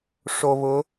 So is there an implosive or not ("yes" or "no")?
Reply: no